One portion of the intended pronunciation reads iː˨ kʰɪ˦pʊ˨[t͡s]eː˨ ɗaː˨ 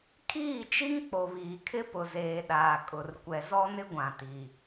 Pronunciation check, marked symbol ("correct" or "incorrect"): incorrect